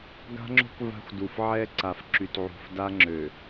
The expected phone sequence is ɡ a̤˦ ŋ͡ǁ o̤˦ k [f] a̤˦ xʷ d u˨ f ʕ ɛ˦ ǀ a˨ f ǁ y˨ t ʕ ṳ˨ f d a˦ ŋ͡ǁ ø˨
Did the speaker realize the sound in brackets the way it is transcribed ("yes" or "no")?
no